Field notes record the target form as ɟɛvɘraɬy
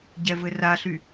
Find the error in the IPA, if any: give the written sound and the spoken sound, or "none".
none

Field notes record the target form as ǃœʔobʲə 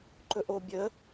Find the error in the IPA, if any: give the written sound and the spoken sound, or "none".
œ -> ɵ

